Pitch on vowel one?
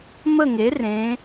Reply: falling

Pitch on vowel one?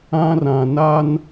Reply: high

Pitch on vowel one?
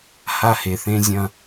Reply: high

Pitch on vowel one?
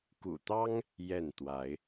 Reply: low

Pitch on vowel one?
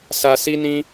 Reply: low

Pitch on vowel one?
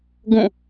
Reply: falling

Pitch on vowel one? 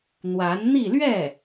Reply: rising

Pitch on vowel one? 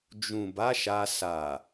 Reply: low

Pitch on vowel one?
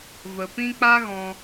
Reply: low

